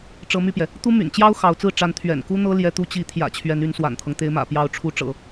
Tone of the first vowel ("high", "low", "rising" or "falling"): rising